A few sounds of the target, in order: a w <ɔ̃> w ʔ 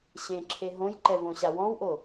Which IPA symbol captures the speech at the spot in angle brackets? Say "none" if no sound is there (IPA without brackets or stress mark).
ɔ̃